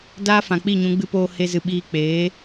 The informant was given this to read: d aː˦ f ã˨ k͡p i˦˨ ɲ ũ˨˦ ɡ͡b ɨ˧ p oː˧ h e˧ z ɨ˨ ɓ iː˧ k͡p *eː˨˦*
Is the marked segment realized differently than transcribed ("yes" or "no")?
no